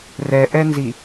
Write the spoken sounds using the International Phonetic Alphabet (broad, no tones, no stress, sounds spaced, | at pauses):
r ɛ ʔ ɛ n z i